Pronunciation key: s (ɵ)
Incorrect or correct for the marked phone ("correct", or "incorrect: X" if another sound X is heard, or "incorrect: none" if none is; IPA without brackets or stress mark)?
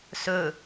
correct